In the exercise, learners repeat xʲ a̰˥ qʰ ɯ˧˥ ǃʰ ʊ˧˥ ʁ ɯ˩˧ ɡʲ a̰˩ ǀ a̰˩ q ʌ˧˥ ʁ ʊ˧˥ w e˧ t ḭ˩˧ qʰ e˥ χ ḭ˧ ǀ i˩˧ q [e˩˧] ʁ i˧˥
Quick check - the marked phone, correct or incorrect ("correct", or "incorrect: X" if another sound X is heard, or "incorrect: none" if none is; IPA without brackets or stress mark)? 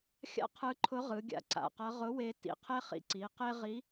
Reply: incorrect: e˥